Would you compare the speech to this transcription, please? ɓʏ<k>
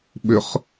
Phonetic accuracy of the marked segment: incorrect: χ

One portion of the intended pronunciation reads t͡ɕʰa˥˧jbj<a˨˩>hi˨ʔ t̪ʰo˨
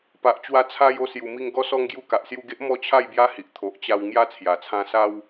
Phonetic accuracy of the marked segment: incorrect: a˦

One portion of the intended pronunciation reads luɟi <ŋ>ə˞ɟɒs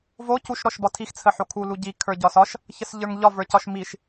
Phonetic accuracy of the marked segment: incorrect: kʰ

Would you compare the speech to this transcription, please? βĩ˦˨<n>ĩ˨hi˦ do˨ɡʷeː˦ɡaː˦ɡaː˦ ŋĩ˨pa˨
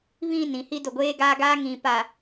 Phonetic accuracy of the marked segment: correct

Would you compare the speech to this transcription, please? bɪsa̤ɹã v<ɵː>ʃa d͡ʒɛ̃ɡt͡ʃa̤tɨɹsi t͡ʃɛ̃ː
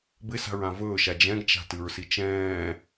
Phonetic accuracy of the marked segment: correct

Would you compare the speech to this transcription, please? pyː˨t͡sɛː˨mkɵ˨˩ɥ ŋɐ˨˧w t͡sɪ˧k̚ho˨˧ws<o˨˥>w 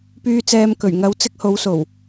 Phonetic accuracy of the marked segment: incorrect: o˨˩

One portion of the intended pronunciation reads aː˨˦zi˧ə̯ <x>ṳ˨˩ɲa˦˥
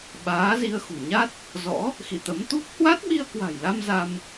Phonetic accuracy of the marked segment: correct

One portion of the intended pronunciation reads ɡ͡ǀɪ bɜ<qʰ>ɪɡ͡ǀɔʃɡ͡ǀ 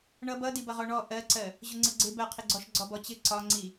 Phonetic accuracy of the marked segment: correct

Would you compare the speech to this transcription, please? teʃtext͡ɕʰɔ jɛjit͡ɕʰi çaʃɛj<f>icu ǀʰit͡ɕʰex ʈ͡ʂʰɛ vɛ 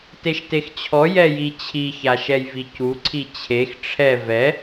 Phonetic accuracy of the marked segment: incorrect: v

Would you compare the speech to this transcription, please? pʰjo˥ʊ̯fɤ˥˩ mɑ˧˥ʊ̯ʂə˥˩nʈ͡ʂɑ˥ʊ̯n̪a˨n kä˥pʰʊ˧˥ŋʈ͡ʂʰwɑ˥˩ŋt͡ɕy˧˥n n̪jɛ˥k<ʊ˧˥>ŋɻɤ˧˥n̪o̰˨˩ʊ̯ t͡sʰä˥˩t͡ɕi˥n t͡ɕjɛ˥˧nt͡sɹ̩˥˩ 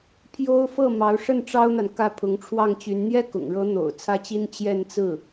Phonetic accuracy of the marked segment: incorrect: ʊ̰˨˩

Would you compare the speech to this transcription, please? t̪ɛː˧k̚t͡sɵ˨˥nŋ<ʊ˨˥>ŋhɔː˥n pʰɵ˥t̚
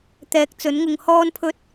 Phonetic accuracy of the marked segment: incorrect: ʊ˧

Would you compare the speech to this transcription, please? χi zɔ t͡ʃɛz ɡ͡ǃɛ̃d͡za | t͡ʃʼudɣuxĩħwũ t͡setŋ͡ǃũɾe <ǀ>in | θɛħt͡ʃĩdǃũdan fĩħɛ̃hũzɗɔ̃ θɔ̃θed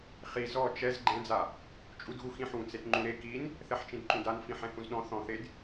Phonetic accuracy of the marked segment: incorrect: k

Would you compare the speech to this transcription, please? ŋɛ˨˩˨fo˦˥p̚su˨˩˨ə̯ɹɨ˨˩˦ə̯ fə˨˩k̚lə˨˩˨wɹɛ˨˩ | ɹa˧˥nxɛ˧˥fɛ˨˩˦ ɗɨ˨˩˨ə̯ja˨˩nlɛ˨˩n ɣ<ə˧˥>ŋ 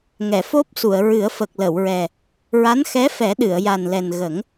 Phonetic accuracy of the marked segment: incorrect: ə˨˩˦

